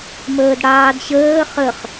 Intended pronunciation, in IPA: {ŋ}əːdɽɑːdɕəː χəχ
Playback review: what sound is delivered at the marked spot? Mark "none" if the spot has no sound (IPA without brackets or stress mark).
m